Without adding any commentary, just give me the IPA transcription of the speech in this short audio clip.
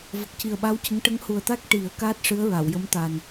v ə˨˩ k̚ c i˨˩ ə̯ ɓ a˧˥ w c ə˧˥ ŋ ʈ ə˧˥ ŋ h u˨˩ ə̯ t̪ a˦˥ k̚ ʈ i˨˩˦ ə̯ k aː˦˥ t̚ ʂ ɨ˧˥ ə̯ ɹ a˨˩˨ w j ə˧˥ m t̪ a˨˩ n

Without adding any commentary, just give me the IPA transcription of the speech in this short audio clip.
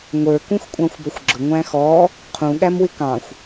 ŋʷ ə˞ k ũ x kʷʼ ɑ̃ xʷ b ʌ xʷ ɡ͡ǁ ʊ ŋʷ æ̃ x ɔ | qʰ ũ ɠ æ m w ɪ k ɑ̃ xʷ

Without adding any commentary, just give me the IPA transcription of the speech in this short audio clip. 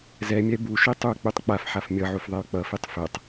z ɛ mʲ ɛ b u ʃ i tˤ u k͡p u tˤ k͡p a f ħ a f mʲ ʌ ʕ u f ðˤ ɛ y̯ k͡p ʌ f i tˤ f ɛ tˤ

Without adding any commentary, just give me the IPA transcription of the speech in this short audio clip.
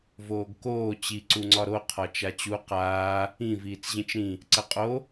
v oː ɡ k oː t͡ɕ i ǀ u ŋ͡ǀ ɒ ɾ o qʰ ɒ t͡ʃ a t͡ɕ u q aː | ĩ v iː t͡s ʑ ĩ t͡ʃ ɾ ĩ | ǀ ə qʼ o

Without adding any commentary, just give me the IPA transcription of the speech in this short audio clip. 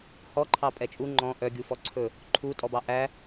h ɔ ǃʰ ɑ pʼ ɛ t͡ʃʼ u ŋ͡ǃ ɔ̃ ʔ œ ɡʲ u f ɔ ǀʰ ɵ | ǃʰ u tʼ ɔ b ɑ ʔ æ

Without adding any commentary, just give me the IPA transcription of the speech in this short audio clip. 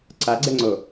ǀ a ɡ͡ǀ ɛ ŋ͡ǀ o

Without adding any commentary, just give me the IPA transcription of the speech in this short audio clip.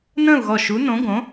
n ə̃ː˥˨ u̯ ɣ ɔ˧˩ ʃ u˨˥ n õ˨˥ ɡ õ˨˥

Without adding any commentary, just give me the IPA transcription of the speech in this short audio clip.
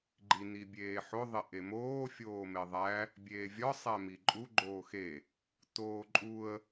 ɡ͡ǃ i n i bʲ eː ħ o ðˤ e ʔ e m oː fʲ oː m e ðˤ æ | bʲ eː vʲ ɒ sˤ æ m i ǃʼ u ɡ͡ǃ oː x e | t oː ǃʼ u ə̯

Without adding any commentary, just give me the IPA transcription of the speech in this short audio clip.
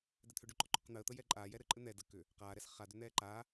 d ɛ t̪ʰ ʏ ɖ ʏ ǃ ɔ ǃ ʏ q n̪ əː t̪ ə j ɛ ǃʼ aː j ɛ ɾ ɘ ǃʼ ɘ n̪ ɛ d ə k ʏ | q aː ɾ ɛ s χ a d ʏ n̪ ɛː ǃ a

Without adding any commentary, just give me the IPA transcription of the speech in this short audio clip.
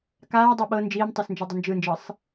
k aː dˤ o ɓ ɤ n d͡ʒ iː m tˤ o s n d͡ʒ ɛ dˤ o n d͡ʒ ɯ n d͡ʒ ɤ sˤ

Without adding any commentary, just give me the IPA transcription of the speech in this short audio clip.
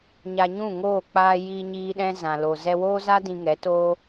ɲ a˧ ɲ ũ˦˨ ŋ oː˦˨ k͡p aː˧ j iː˧ ɲ iː˧ ɗ ɛ̃˧ z ã˨ l o˨ z ɛ˧ w oː˦ z a˦ d ĩ˧ ŋ ɛ˨˦ t oː˦

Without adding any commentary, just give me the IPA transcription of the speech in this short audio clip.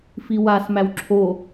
f i w a s m æ w ǁʰ o

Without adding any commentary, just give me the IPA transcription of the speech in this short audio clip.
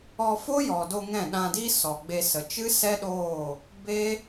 ɔ˧ f o˦ j ɔ˨ d o˧ ŋ ɛ̃˦˨ ɗ ã˧ d iː˦ s ɔ˨ ɡ͡b e˧ s ə˨ t͡ʃ ɨ˦ s ɛ˦ ɗ oː˦˨ | b e˦

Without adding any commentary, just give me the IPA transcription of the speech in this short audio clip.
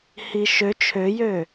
h i ʃ ø t͡ʃʰ ø j ø

